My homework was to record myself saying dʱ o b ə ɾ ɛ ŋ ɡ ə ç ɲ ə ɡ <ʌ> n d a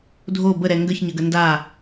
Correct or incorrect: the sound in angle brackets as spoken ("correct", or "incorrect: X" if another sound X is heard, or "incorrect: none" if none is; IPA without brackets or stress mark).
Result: incorrect: ə